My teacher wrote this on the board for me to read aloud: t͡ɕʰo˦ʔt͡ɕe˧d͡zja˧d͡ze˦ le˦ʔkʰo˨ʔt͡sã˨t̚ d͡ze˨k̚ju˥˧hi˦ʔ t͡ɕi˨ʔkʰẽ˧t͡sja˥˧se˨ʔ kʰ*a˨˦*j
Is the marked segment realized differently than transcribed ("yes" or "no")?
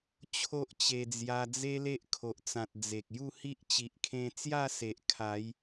no